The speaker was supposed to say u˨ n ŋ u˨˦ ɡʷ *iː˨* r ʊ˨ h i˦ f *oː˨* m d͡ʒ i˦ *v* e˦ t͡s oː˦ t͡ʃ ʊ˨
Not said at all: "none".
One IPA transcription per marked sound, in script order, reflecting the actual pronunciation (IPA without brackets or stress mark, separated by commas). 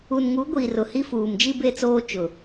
iː˨, uː˨, b